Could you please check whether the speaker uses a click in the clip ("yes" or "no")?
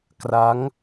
no